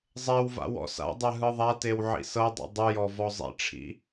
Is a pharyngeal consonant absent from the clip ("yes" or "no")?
no